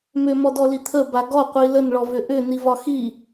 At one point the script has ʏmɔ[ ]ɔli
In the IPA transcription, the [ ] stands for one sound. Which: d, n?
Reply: d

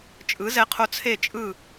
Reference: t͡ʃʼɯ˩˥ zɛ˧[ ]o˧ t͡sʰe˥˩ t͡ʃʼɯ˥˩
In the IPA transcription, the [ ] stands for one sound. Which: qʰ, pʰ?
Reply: qʰ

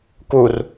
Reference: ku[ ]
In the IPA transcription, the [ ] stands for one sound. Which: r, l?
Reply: r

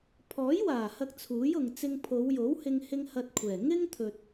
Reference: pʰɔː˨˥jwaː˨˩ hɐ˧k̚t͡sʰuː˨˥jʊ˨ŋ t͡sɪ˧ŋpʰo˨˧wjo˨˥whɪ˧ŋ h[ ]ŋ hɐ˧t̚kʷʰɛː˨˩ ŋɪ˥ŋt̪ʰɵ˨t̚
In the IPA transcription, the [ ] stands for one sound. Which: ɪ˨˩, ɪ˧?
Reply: ɪ˧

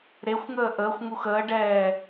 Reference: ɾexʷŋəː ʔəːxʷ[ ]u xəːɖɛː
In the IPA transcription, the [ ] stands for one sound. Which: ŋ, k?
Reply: ŋ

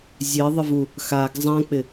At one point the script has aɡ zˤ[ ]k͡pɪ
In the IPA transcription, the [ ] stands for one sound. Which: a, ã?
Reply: ã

